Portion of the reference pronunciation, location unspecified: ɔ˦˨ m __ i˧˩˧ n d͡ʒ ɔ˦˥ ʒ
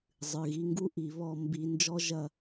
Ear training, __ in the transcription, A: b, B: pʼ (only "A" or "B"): A